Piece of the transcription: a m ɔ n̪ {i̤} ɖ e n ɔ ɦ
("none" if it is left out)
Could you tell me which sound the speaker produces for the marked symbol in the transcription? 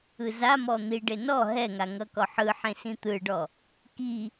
i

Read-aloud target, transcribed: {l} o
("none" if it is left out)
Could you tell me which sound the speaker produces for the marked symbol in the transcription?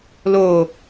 l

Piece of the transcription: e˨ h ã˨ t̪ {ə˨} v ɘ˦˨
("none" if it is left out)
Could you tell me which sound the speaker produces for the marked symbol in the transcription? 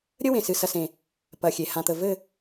ə˨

